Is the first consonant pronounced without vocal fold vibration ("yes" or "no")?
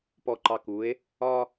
yes